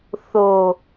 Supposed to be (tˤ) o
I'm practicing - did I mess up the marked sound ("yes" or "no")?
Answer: yes